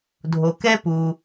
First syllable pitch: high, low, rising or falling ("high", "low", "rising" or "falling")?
low